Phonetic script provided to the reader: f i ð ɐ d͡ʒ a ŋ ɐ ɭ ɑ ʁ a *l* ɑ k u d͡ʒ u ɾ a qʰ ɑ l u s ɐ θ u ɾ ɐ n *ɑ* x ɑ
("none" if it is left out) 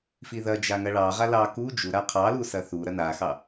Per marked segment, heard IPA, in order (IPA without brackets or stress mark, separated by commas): l, a